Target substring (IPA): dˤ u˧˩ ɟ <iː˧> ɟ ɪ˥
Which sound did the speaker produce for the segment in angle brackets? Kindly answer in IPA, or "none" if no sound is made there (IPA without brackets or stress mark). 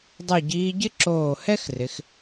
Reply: iː˧